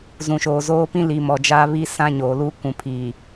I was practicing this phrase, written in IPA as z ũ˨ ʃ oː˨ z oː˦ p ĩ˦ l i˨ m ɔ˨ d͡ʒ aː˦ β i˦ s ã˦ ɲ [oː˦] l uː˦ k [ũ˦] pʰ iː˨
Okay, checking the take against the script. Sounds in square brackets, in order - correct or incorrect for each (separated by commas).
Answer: incorrect, incorrect